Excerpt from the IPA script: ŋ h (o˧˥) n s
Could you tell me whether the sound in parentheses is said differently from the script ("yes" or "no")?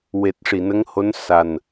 no